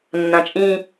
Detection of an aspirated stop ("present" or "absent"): absent